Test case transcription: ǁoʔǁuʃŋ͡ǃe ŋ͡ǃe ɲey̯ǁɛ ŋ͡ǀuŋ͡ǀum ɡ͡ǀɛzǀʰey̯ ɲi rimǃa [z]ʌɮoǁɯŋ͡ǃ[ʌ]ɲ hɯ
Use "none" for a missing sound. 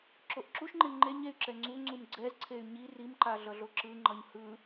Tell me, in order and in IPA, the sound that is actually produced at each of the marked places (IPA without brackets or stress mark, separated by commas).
ɮ, ʌ